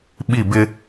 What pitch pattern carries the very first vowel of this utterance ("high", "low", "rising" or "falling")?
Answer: falling